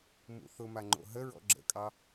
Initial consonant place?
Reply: labial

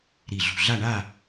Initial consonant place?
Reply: alveolar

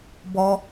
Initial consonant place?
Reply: labial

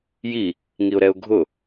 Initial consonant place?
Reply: palatal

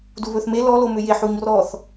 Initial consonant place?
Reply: alveolar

